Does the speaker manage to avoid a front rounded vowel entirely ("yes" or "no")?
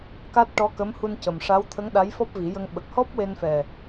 yes